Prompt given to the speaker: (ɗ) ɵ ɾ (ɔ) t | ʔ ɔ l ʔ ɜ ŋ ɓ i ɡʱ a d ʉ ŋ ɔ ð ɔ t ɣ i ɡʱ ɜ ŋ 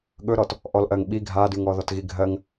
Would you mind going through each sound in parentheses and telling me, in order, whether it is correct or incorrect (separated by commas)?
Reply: incorrect, correct